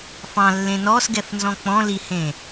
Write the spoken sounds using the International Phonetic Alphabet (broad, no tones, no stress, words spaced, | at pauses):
fɑ̃lːẽ nɔsɡɛfnzɔ̃ k͡pɔ̃lihẽ